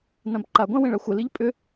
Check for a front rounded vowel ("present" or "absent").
present